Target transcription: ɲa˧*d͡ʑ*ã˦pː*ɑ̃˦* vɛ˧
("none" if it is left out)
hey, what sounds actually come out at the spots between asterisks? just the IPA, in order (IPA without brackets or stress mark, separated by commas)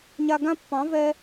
ɡ, ɑ̃˨˦